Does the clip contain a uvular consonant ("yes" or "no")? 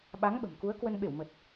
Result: no